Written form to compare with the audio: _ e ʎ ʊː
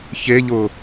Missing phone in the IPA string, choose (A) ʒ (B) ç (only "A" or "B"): B